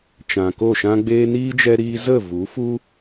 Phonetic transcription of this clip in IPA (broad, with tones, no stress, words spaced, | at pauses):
t͡ʃã˨ko˦˨ ʃã˧ɡ͡beː˧niː˦ d͡ʒɛ˧ɾiː˧zə˦˨ vu˨˦fu˦